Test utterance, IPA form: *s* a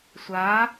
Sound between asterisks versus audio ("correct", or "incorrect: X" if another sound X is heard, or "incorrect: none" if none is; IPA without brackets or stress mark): incorrect: sʷ